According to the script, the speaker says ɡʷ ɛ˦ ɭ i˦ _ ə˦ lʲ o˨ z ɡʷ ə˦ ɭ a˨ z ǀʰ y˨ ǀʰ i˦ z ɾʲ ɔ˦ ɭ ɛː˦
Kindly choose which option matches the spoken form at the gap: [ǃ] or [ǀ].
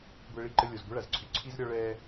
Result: ǃ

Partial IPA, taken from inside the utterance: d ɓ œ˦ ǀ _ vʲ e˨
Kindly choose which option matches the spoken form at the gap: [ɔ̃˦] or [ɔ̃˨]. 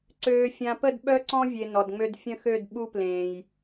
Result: ɔ̃˦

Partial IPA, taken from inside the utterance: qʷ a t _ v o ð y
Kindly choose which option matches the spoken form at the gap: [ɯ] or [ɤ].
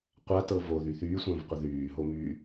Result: ɤ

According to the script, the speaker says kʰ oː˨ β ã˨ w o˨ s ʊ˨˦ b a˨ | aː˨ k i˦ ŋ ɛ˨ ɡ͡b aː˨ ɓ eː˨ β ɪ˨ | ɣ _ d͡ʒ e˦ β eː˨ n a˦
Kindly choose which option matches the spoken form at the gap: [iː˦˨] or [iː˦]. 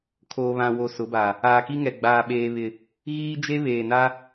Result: iː˦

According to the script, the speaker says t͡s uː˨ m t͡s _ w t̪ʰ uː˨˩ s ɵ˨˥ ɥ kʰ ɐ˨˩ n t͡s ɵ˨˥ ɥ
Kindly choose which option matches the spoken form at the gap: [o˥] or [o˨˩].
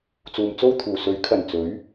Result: o˥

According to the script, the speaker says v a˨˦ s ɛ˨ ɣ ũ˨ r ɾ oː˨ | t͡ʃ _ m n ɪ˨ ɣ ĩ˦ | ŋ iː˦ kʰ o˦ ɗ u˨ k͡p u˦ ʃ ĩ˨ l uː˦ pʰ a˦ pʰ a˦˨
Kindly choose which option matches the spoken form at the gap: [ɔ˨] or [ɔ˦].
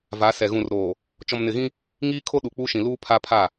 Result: ɔ˨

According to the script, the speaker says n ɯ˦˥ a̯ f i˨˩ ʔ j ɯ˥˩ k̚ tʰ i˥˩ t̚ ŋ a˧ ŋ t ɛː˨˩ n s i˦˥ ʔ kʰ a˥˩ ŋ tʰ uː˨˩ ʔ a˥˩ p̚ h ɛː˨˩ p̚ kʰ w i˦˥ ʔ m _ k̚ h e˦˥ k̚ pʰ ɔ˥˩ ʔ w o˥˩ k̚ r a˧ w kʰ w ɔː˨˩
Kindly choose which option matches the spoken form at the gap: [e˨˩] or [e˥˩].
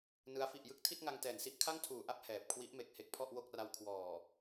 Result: e˨˩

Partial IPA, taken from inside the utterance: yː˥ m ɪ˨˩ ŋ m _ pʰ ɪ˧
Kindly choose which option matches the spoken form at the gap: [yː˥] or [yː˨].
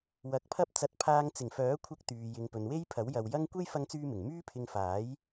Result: yː˥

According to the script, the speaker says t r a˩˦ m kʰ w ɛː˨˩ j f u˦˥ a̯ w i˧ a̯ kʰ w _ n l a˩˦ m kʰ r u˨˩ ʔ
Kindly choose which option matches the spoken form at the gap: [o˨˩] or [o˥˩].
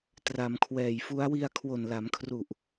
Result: o˨˩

